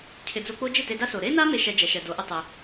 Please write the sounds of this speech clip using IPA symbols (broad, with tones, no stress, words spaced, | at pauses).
cʰɪ˨d͡zo˧k͡po˦ d͡ʒɪ˦˨te˧da˦so˨ ɾe˦na˦ me˦ʃɛ˧d͡ʒɛ˨ʃɛ˨ do˨˦ʔɪ˦ tˤɪ˧